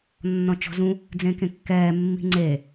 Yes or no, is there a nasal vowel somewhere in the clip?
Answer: yes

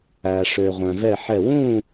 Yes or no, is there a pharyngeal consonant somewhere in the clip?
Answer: yes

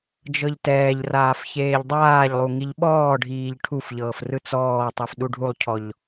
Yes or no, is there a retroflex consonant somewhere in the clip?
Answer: yes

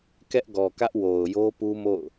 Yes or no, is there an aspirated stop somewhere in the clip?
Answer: no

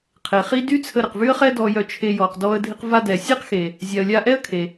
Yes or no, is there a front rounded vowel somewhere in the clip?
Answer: yes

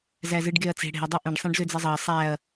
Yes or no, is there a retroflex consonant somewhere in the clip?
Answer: yes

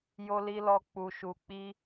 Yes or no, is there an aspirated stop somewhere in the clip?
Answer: no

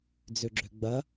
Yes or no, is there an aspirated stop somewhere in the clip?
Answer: no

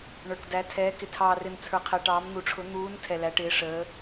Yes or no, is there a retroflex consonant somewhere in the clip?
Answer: yes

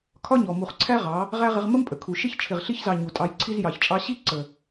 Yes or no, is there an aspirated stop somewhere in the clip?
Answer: yes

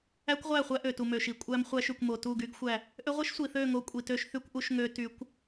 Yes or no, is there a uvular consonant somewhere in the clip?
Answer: yes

